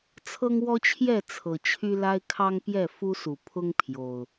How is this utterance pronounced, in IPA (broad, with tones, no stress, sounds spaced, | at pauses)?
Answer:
t͡sʰ ɤ˦ ŋ w ɔ˦ t͡ɕʰ j ɛ˥˨ t͡sʰ ɤ˨˩ t͡ɕʰ y˦ l a˦ ɪ̯ kʰ ɑ˦ ŋ p j ɛ˥˨ f u˦ s u˨˩ pʰ ʊ˦ ŋ pʰ j o˨˩ ʊ̯